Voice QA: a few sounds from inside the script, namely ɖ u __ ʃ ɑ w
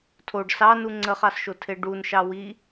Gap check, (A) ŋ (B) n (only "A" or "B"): B